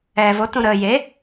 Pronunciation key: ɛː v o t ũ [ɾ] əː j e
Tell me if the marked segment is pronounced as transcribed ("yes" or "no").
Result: yes